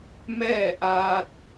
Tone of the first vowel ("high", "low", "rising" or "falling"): falling